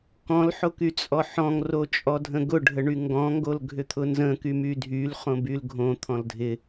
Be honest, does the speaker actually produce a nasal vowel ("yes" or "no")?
yes